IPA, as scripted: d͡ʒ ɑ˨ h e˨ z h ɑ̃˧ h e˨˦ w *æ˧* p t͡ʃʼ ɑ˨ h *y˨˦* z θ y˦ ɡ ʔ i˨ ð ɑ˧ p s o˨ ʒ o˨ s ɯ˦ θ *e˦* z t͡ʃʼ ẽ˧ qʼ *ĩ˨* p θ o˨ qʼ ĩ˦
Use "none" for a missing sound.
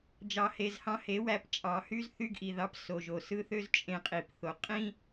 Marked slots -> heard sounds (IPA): æ˧, y˦, ø˦, i˨

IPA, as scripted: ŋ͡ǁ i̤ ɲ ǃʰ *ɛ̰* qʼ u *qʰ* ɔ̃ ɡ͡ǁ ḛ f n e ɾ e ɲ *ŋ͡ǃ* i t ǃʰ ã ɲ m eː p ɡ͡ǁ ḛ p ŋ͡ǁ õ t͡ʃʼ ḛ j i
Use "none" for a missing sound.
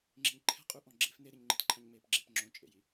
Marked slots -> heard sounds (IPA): ɛ̤, ʔ, ŋ͡ǃ

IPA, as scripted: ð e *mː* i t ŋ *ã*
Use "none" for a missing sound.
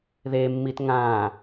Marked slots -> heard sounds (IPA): mː, ã

